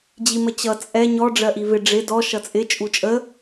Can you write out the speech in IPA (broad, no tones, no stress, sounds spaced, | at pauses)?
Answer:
d͡ʑ i m ə t͡ɕ ʌ t͡sʼ ɛ ɲ ɔ ɖ͡ʐ ɜ ʔ i v ɪ ɖ͡ʐ ɪ d ɔ ʃ ʌ t͡sʼ ɪ t͡ʃʼ u t͡ʃʼ ə